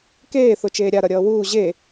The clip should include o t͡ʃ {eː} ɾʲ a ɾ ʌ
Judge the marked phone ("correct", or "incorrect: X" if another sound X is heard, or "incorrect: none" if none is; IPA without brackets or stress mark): correct